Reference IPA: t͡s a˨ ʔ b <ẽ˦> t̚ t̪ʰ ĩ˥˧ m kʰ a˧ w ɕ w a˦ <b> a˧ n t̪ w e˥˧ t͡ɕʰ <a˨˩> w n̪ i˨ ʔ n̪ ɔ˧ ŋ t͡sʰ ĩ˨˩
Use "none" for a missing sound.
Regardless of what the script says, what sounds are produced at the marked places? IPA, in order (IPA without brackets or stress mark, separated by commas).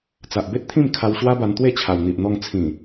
e˦, b, a˨˩